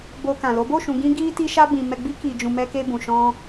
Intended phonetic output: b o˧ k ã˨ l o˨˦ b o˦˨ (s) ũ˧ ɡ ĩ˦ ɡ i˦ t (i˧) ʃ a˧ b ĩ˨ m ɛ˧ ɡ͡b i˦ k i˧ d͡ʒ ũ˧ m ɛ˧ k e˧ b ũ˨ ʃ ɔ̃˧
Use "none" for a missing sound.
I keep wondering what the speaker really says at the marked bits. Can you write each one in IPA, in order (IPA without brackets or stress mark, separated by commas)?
ʃ, i˧